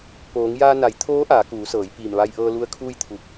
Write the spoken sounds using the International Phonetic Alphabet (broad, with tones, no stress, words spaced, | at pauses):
poː˩˧ŋjaː˧na˩˧j t̪ʰoː˧˥ ʔaː˩˧kuː˩˧sɤː˩˧j piː˧˩mʋa˧jʔɤː˧ lu˧ə̯kʰuː˥˨jt̪ʰu˧˩k̚